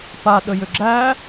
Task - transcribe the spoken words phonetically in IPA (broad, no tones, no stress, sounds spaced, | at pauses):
p a ɗ ə j ʏ ɡ͡ǁ æ